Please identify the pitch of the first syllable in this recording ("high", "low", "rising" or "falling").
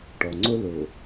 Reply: low